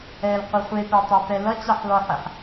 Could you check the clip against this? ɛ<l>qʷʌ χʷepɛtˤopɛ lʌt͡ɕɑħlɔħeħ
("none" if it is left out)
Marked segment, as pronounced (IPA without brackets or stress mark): l